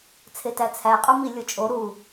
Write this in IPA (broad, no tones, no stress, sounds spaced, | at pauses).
t͡sʰ e t æ t͡sʰ æ qʼ u m i lʲ o t͡ʃʼ o ɾ u